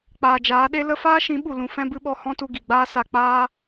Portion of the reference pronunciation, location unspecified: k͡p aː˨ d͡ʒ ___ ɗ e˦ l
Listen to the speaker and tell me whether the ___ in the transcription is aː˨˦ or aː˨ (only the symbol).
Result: aː˨˦